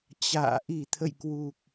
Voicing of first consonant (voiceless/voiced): voiceless